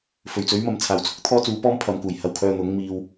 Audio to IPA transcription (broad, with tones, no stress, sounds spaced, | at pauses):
f ɵ˨˩ ɥ t͡s ɵ˨˥ ɥ m ɐ˨ m t͡sʰ aː˨˩ w t͡sʰ ʊ˥ k̚ t̪ʰ ɔː˥ t͡s uː˨˥ p ɔː˥ m pʰ ɐ˨˧ m k uː˨˩ j h ɐ˧ w kʰ œː˧ n̪ ʊ˨˥ ŋ m iː˧ w